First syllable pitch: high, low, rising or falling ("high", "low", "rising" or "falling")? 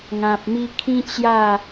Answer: low